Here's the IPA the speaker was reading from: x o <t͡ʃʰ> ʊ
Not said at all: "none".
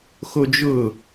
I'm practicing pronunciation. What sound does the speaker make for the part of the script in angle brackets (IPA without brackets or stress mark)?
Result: d͡ʒ